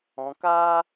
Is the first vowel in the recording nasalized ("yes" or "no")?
yes